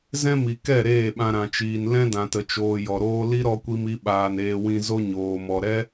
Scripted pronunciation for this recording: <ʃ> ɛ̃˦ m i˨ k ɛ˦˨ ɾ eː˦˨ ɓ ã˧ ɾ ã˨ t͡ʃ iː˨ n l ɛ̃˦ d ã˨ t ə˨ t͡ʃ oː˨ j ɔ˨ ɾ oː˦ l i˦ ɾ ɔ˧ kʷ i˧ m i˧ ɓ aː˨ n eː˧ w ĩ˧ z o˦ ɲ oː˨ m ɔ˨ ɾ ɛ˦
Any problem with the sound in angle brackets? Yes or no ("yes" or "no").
yes